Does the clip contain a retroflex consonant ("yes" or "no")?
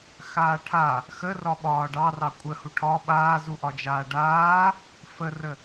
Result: yes